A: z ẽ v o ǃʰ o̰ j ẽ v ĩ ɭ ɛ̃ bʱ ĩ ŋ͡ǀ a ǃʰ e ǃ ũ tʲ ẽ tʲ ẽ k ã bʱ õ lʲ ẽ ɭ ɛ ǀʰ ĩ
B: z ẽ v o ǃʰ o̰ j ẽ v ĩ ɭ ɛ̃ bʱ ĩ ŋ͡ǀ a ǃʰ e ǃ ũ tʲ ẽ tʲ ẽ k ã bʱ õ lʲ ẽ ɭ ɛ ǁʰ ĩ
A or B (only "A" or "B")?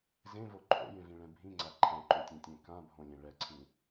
A